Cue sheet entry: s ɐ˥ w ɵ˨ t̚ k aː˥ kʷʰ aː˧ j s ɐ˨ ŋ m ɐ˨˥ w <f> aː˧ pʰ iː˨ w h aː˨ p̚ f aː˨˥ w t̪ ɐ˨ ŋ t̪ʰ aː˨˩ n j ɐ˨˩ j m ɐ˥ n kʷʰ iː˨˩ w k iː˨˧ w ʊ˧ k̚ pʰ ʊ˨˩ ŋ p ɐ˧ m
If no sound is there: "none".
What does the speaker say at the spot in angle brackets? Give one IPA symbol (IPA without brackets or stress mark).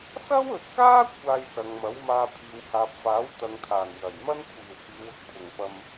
m